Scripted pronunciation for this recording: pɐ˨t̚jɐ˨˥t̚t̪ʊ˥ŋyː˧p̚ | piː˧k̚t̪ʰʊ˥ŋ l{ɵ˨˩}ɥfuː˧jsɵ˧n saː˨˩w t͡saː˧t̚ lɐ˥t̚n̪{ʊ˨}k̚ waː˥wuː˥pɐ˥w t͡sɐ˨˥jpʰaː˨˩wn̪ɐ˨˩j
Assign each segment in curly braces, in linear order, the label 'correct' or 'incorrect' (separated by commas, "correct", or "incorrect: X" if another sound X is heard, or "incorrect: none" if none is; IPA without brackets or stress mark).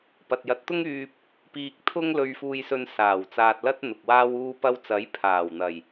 incorrect: ɵ˧, correct